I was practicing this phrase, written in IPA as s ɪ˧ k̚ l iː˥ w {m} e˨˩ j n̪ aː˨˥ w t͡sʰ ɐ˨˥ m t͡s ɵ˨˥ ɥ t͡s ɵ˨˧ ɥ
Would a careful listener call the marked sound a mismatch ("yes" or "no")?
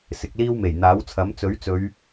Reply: no